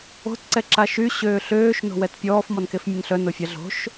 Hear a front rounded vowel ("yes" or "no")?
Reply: yes